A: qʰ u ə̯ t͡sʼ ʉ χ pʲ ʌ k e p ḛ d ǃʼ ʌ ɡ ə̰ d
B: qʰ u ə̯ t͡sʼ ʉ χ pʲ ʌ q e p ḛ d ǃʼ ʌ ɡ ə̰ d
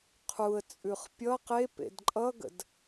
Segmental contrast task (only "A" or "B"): B